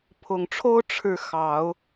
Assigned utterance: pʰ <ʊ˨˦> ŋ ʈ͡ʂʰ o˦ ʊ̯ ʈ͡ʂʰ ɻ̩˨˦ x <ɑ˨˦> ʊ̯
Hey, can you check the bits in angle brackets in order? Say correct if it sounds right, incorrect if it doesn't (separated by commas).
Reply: incorrect, correct